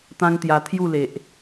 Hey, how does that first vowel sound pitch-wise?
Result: high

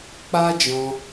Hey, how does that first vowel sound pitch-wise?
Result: high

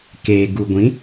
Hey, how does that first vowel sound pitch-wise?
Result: low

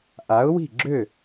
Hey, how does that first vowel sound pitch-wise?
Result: rising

